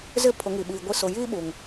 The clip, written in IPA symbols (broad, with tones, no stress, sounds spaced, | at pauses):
z ɪ˦ pʰ ʊ˨˦ ŋ i˨ ɓ iː˨ ɡʷ i˦ s ʊ˨ j iː˦ ɓ uː˨ ŋ